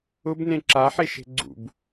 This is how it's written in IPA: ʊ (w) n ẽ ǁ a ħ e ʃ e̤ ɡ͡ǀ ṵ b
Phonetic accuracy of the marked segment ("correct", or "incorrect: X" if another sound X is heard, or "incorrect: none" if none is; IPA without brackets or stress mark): incorrect: b